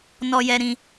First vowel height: mid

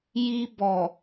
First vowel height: high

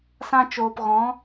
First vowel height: low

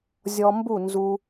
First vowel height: mid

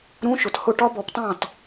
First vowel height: high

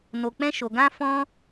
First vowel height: mid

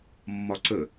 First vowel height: low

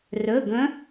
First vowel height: mid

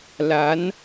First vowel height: low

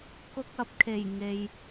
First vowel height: high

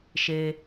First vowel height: mid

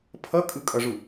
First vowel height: mid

